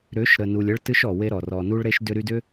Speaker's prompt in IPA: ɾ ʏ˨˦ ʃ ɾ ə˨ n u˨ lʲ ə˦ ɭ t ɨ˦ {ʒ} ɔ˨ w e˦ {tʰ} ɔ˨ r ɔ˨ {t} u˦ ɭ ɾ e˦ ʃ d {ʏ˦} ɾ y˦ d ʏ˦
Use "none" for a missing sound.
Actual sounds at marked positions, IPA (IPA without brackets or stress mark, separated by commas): ʃ, ɾ, n, ʏ˦